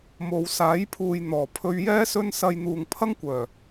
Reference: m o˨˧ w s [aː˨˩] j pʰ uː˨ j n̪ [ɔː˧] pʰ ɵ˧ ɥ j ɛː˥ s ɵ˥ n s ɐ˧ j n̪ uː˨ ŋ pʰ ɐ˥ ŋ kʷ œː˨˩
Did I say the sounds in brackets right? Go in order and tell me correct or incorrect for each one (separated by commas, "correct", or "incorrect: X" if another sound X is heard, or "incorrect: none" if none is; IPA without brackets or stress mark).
incorrect: aː˨˥, incorrect: ɔː˨˩